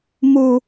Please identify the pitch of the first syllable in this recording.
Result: low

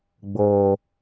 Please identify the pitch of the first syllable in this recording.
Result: low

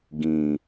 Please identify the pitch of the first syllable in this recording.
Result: low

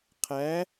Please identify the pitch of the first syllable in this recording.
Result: rising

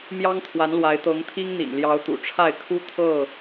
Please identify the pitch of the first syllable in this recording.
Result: high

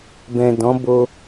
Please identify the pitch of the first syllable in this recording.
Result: low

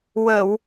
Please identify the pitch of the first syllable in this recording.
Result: low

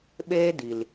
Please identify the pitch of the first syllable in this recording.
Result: high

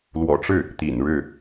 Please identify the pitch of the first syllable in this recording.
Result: low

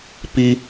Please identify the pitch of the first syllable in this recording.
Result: high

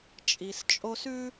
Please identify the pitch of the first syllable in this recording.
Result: low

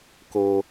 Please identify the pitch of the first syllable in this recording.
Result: low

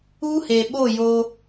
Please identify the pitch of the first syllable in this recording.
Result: high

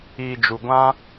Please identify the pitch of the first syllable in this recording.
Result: low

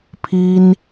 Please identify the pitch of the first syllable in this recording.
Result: high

